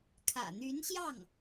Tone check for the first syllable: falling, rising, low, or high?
low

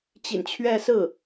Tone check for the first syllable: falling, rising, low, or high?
low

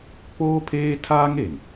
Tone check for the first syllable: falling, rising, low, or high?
high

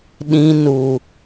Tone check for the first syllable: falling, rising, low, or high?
high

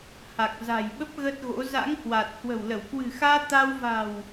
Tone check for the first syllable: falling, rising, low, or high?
low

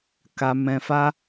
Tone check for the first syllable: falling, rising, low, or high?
high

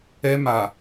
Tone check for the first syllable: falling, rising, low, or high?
high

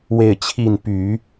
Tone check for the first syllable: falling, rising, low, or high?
falling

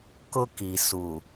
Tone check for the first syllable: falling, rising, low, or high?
high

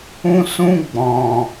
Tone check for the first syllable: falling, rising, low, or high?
high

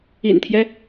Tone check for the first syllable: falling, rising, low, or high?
low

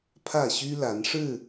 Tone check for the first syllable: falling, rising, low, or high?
falling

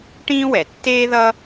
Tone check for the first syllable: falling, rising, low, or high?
high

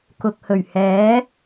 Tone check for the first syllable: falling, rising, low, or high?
low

